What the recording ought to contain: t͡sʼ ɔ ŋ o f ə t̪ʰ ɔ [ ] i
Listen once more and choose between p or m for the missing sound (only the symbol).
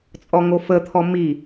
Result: m